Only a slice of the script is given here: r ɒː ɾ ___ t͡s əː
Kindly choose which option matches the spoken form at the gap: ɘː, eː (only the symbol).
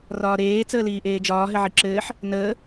eː